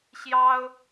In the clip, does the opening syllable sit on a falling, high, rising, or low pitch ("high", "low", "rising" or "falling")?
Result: high